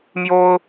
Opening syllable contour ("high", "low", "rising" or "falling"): high